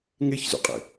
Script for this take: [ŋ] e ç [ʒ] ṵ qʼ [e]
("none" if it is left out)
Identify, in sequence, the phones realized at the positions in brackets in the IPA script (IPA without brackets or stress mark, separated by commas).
ŋ, z, ḛ